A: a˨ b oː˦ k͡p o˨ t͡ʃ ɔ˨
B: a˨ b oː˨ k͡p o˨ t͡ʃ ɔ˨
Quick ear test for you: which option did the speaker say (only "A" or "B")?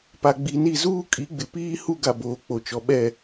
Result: B